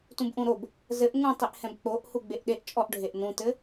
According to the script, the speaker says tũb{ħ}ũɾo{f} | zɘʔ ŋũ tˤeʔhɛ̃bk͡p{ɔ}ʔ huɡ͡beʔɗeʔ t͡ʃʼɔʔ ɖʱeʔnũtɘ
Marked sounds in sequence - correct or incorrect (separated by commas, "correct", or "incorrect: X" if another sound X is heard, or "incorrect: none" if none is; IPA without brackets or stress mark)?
incorrect: ʔ, incorrect: b, incorrect: o